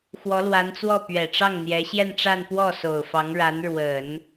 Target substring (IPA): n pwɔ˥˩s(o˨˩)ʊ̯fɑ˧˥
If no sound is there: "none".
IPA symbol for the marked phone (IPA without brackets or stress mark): o˨˩